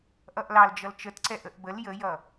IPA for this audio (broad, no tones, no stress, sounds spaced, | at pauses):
ʔ ʌ ʔ l ɑ l d͡ʒ ʌ l t͡ʃ ə t ǀ ɛ ʔ ə ʔ b ə l j ə j ʌ